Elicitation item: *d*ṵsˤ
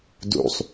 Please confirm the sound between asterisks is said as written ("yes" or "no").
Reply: yes